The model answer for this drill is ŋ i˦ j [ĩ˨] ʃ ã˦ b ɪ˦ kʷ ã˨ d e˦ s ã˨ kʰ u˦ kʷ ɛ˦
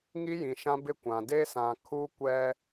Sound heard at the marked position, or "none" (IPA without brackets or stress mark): ĩ˨